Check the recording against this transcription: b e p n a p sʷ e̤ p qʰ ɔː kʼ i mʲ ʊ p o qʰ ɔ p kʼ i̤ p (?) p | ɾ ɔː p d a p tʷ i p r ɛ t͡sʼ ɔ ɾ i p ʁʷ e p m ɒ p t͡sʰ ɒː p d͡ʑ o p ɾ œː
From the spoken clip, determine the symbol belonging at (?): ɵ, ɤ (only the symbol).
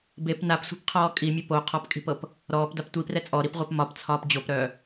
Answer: ɤ